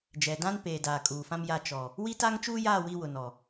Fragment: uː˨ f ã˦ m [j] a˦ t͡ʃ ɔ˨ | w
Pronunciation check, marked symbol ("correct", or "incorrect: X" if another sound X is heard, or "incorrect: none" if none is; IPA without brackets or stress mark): correct